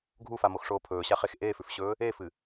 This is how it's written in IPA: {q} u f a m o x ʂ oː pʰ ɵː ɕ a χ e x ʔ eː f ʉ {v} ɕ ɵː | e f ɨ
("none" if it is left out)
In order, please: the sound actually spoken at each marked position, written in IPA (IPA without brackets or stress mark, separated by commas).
ɡʱ, f